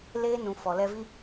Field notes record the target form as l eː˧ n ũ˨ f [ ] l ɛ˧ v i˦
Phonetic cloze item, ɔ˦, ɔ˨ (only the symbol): ɔ˨